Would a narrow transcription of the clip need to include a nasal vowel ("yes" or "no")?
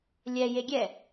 no